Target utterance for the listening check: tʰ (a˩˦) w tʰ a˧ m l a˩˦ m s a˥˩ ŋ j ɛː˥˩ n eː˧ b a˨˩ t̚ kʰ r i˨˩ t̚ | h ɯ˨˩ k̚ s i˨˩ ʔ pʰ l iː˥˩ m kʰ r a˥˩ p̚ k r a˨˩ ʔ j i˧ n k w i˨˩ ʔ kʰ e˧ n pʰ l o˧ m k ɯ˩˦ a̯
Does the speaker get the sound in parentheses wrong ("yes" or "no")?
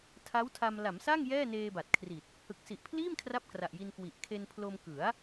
yes